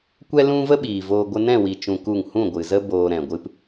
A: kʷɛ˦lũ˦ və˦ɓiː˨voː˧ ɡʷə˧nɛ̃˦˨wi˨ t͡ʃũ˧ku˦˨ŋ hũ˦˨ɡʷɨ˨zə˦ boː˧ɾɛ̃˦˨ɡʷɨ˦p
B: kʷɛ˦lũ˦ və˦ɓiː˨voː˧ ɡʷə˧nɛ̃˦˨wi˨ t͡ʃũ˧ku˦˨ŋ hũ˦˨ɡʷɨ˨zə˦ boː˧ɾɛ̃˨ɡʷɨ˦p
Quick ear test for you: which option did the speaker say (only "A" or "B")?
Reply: B